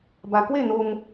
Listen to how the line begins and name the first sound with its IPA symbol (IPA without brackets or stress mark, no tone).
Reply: b